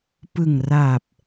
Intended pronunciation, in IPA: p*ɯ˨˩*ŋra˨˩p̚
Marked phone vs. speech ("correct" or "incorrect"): correct